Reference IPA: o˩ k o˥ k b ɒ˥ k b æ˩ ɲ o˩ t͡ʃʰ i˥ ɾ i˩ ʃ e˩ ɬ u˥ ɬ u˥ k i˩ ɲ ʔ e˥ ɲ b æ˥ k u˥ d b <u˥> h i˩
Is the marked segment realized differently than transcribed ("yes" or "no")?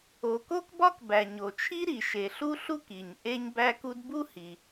no